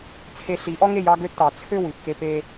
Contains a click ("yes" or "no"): no